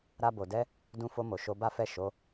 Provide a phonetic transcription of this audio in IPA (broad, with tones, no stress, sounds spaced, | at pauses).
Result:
ɾ a˧ b o˨ d ɛ˧ | d ũ˧ f o˧ m o˨ ʃ o˧ b a˦ f ɛ˦˨ ʃ o˨˦